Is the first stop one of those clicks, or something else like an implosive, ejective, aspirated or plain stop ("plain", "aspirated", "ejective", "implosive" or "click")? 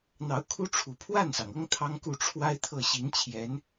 aspirated